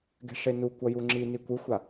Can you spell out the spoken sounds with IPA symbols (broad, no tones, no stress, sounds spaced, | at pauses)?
ɡ ɛ̤ ʂ e n u kʷ ʌ j u ŋ͡ǁ i n i kʷ ɯ xʷ a